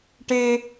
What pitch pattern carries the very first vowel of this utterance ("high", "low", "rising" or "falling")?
high